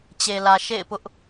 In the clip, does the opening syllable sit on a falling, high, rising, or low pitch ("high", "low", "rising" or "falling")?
low